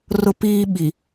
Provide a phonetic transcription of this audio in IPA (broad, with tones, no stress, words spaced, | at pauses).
rʊ˦piː˦ ɓi˨